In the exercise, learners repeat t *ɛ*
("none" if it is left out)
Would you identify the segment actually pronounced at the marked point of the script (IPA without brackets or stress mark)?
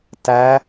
æ